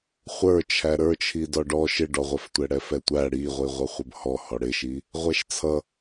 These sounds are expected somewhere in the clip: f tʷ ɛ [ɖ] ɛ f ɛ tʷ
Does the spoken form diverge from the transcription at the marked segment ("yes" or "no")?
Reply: yes